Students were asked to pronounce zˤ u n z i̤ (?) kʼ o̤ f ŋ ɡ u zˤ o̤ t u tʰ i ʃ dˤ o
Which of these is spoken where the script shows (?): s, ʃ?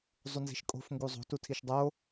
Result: ʃ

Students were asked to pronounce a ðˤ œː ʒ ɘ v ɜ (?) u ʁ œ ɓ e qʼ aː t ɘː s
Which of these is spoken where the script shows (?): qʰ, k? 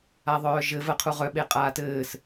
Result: qʰ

